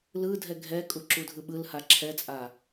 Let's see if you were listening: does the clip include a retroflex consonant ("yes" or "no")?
no